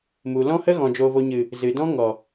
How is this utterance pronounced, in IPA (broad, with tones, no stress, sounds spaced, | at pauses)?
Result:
m u˨ l ɔ̃˦ h ə˦ ɣ ɔ̃˨ d͡ʒ oː˨ v o˨ ɲ ɨ˨ | z ɨ˨ d ɔ̃˦ ŋ ɔ˨